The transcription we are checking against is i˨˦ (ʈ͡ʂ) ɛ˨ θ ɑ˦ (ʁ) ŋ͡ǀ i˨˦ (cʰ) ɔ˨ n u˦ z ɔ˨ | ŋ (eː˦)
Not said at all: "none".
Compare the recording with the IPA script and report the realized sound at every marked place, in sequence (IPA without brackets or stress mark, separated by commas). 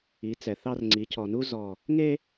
t͡s, r, cʰ, e˦